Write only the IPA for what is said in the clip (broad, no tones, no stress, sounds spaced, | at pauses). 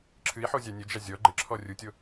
ǁʰ ɨ i̯ ħ o zʲ a nʲ ɘ d͡ʒ a zʲ ɔ ɡ͡ǃ ɘ ǁʰ ɔ rʲ u tʲ o